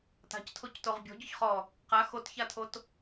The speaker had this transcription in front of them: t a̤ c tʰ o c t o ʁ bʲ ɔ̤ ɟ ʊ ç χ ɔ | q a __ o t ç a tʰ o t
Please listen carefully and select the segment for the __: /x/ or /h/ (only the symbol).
x